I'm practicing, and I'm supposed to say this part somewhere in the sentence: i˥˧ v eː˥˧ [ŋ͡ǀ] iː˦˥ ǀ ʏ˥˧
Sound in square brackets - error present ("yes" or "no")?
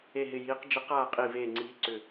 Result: no